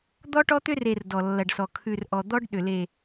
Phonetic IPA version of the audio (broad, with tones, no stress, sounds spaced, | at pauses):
d̪ ɔ˦ ʈ ɔ˦ t̪ ʏ˦ r e˨ r d ɔ˨ lː ɐ˨ ɖ s ɔ˨ kʰ ʉ˨ r ʔ ɔ˨ d̪ ɔ˦ ɖ ɗ ʏ˨ l e˨